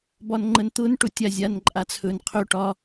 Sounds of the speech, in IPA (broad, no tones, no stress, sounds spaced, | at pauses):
b ɒ n ŋ͡ǃ ə n t̪ ʊ n ʈ ʊ tʲ a zʲ a n ǃʼ a t͡sʰ ɵ n qʰ ɵ ʈ ɒ